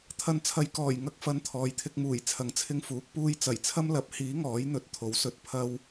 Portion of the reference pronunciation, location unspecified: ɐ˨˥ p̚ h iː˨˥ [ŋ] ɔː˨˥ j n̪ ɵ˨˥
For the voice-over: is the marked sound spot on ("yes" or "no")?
yes